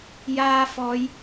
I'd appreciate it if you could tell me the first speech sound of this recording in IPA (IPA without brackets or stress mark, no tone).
j